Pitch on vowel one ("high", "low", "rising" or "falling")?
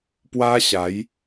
high